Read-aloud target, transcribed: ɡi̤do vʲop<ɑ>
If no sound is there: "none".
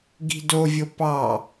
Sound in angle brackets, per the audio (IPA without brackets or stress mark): ɑ